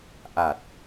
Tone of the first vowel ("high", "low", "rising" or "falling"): low